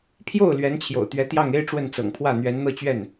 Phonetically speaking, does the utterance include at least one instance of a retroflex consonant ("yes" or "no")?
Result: yes